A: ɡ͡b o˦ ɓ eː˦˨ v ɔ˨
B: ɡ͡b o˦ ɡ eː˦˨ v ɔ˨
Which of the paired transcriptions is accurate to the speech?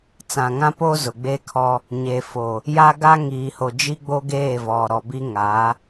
B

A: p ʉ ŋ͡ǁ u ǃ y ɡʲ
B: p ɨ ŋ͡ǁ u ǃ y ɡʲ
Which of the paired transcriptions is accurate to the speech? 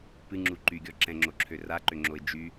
B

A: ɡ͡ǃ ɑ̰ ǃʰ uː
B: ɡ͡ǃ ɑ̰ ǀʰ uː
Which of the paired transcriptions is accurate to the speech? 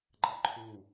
A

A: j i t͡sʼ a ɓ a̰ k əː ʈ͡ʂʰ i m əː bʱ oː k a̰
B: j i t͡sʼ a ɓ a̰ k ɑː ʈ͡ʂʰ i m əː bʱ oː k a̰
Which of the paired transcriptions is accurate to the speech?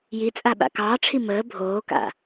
B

